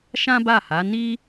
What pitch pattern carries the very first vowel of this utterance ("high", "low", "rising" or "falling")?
high